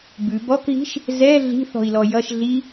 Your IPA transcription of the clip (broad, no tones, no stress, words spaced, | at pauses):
bʉ bɔkɣi̤ʃ | zɛ ɮi̤θɔ̤i̯lɔ jʌʃ ɮi